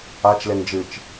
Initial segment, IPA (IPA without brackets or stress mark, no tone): a